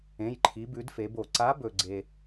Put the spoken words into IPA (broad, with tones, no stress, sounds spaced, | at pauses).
ẽ˩˧˩ j ǃʰ i˩˧ b ʉ˩˧ d f e˩˧ b o˩ ǀ a˨˥ b ɵ˩ ɡ͡ǀ e˩